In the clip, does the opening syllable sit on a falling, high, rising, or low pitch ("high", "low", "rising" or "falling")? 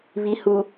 low